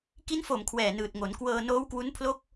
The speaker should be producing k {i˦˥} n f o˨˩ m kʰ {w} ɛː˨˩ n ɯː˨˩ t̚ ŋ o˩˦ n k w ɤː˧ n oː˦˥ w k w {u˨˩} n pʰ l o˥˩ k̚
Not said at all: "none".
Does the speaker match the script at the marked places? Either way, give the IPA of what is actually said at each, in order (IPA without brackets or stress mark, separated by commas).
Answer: i˦˥, w, u˦˥